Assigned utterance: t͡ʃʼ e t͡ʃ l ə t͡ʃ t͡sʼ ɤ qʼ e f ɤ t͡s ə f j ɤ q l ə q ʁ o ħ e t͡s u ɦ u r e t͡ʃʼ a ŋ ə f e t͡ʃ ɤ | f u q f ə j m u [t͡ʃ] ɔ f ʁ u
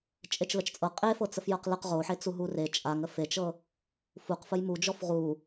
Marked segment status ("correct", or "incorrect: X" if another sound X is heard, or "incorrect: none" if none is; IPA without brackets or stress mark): incorrect: d͡ʒ